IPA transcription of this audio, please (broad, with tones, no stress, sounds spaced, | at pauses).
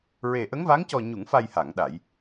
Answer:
ɹ e˨˩ ʔ ə˧˥ ŋ v a˧˥ ŋ c ɔ˨˩ ɲ u˨˩˨ ŋ f a˨˩ j h a˨˩˨ ŋ ɗ a˨˩˨ j